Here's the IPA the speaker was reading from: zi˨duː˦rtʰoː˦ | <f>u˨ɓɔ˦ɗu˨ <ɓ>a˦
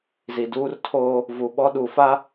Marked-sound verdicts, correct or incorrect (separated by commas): incorrect, incorrect